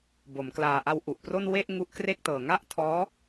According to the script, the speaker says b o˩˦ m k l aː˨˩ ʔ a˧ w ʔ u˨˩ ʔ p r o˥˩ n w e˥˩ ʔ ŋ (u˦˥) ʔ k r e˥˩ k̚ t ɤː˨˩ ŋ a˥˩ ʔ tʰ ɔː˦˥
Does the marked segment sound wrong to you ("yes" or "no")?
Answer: no